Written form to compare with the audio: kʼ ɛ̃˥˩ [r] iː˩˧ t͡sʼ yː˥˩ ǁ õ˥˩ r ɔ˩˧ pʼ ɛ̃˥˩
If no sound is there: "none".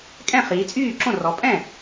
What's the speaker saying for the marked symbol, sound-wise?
χ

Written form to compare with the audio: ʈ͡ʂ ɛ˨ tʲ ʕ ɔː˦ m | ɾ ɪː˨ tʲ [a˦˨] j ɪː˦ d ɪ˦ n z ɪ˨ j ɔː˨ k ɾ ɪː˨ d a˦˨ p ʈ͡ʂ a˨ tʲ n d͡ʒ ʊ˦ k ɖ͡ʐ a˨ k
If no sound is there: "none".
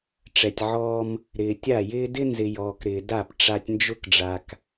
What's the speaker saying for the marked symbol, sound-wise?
a˦˨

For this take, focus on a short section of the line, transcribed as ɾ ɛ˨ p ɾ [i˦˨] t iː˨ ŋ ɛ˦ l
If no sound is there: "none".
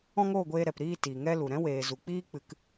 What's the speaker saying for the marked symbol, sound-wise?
iː˦˨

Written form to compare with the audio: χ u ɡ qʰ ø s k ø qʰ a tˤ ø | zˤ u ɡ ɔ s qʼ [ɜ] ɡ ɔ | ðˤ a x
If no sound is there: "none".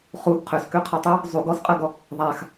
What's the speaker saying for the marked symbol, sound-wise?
ɜ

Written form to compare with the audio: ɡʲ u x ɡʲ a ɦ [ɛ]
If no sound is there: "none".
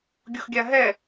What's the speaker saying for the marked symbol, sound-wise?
ɛ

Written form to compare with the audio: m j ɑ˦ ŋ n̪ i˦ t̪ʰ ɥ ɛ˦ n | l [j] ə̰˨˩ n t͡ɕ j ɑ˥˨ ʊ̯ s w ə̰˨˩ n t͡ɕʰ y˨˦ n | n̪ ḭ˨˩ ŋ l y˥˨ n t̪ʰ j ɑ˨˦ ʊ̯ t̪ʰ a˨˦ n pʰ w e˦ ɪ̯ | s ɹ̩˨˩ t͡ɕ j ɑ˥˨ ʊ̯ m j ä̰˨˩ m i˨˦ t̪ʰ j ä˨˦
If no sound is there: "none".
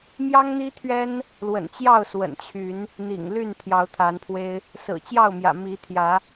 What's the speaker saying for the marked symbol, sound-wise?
w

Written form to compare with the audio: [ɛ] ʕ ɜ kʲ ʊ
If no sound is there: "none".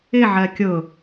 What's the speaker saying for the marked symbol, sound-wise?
ɪ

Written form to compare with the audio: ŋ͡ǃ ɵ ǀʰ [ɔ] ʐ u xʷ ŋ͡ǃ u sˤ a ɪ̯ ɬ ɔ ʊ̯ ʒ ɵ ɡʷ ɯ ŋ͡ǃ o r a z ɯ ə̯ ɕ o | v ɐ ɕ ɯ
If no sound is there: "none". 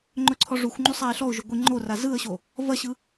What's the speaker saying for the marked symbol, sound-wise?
ɔ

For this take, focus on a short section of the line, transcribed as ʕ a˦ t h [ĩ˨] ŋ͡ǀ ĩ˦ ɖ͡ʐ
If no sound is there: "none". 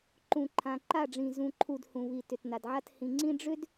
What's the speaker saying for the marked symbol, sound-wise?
ĩ˨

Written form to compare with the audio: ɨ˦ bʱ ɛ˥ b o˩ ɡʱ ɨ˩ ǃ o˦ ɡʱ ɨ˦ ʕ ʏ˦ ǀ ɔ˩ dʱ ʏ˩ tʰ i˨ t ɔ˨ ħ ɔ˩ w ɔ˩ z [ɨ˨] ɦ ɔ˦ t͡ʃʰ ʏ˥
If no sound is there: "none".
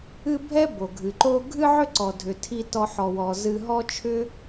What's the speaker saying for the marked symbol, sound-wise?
ɨ˨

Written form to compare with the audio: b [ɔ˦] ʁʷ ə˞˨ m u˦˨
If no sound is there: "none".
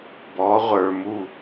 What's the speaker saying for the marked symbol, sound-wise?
ɔ˨˦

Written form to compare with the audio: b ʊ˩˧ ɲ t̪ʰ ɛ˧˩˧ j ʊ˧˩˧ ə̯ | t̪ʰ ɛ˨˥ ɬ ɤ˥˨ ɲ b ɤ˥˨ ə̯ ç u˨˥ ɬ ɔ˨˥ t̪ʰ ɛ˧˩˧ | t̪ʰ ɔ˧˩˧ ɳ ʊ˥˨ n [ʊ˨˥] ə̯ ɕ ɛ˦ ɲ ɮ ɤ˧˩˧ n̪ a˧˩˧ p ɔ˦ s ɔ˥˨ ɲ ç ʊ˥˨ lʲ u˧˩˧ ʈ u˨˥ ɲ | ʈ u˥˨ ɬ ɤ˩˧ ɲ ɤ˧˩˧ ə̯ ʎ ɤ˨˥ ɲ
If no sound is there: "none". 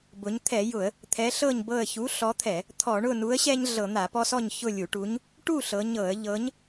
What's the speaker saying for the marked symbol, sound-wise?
u˨˥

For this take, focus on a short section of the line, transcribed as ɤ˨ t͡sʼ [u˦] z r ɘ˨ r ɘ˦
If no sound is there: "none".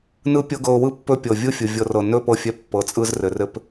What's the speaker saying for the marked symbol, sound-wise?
ɯ˦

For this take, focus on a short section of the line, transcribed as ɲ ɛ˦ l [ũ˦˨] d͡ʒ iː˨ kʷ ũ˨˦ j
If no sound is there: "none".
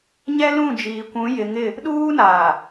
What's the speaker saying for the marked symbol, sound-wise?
ũ˦˨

